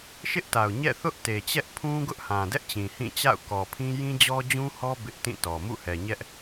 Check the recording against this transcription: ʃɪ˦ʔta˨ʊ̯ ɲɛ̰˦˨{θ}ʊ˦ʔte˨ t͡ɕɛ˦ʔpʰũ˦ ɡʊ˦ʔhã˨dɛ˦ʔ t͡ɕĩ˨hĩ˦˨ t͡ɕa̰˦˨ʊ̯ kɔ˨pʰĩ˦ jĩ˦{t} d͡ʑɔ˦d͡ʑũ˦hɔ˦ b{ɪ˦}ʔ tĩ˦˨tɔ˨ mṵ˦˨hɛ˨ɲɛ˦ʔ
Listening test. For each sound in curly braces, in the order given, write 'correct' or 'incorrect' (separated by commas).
correct, incorrect, correct